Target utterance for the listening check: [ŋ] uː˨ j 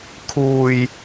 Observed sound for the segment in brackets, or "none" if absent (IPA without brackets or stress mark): kʰ